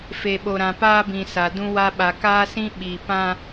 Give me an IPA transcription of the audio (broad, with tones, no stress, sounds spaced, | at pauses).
f e˨ ɓ o˨ ɾ ã˨ p aː˦ b ĩ˨ s a˨ d ũ˦ w a˦ ɓ a˨ k aː˦ s ĩ˦ ɓ i˨ p ã˦